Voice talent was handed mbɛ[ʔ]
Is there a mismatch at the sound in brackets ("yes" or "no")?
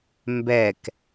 yes